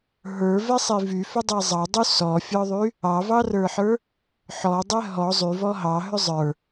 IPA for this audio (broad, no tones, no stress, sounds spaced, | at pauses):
ɦ ə˞ v ɛ sˤ i v y f ʏ dˤ i zˤ ɑ dˤ y s ɔ fʲ ɔ ðˤ y | ɑ v ɑ r ə˞ ħ ə˞ | ħ ɔ dˤ ɛ ɦ ɔ zˤ y v ɔ ɦ ɑ ɦ ʏ zˤ ə˞